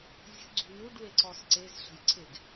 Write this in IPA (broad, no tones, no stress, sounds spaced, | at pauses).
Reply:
zʲ ə̤ ɡ͡ǀ ṳ n u ɖ w e ǀ ɔ s ǀ e z ɬ ə̤ j ǀʰ e ɡ